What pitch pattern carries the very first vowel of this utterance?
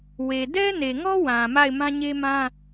low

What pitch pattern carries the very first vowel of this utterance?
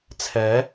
rising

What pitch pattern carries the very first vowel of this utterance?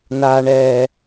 low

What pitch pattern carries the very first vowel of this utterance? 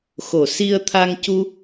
low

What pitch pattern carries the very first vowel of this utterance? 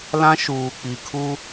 high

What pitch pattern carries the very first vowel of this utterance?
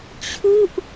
falling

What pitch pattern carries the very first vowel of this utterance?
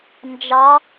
rising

